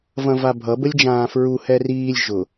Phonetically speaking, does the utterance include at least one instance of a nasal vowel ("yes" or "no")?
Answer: yes